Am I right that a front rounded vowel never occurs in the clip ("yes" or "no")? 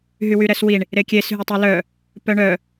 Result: no